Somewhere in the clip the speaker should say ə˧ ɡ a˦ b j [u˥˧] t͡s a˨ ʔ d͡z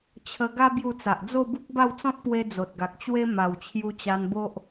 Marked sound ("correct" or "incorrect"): correct